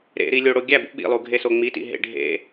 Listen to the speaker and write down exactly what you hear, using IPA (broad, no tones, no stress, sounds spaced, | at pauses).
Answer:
ɾ ḛ ɾ i lʲ o ɽ o ɡʲ æ b ṵ ɓ ḭ lˠ u ɡʱ e s o ŋ͡m i t ḭ ɦ ḛ ɖʱ ḛ